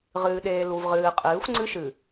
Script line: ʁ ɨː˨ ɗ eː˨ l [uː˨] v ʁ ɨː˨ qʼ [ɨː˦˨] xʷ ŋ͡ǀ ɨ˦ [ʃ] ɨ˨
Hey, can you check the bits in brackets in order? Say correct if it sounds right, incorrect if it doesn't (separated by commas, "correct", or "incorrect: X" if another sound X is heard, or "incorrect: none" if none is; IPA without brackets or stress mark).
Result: incorrect: u˨, incorrect: ɨː˨˦, correct